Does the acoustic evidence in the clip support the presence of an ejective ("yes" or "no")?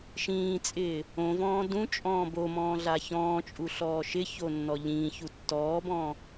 yes